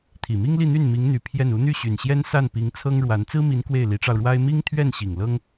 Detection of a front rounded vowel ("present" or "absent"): present